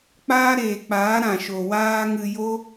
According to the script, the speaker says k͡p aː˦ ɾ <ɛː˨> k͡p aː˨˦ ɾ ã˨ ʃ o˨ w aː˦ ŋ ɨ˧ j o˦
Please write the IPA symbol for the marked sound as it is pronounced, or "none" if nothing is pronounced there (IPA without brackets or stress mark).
eː˨